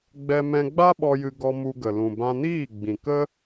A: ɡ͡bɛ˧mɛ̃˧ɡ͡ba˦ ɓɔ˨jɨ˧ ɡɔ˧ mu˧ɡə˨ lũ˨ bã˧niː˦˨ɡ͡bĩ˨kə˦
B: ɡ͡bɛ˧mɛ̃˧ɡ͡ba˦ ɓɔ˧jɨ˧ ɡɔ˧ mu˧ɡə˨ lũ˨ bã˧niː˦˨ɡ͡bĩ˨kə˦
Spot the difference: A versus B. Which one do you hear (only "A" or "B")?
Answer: B